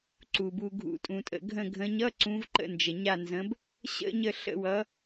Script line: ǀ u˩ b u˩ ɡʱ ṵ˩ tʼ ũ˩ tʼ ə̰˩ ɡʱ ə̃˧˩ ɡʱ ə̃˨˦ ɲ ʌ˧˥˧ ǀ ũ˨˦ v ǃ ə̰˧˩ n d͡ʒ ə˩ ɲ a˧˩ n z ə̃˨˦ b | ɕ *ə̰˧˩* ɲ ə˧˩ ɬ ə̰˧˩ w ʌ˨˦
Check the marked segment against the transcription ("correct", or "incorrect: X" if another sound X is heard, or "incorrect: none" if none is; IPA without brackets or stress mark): incorrect: ə̰˧˥˧